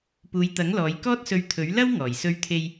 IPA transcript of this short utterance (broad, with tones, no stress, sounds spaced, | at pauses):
p uː˨˧ j t̪ ɐ˨˥ ŋ l ɔː˨˧ j k ɔː˥ t̚ s ɵ˧ ɥ t̪ʰ ɵ˨˥ ɥ l ɐ˥ w ŋ ɔː˨˩ j s ɵ˧ ɥ t̪ʰ e˧ j